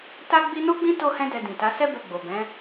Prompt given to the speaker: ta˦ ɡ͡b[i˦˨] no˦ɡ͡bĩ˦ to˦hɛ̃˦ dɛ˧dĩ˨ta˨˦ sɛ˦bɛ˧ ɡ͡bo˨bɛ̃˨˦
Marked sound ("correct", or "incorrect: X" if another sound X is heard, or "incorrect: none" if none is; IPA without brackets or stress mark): incorrect: i˦